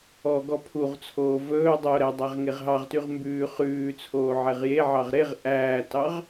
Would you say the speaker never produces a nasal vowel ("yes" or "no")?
yes